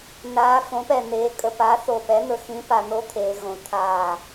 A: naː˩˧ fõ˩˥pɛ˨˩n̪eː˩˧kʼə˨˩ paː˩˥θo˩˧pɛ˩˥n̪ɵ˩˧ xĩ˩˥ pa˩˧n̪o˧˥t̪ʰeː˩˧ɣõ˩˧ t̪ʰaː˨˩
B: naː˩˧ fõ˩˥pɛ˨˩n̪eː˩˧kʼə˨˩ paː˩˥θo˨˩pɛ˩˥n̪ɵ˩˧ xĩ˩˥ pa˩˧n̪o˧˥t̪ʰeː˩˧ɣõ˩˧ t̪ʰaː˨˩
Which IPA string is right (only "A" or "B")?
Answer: B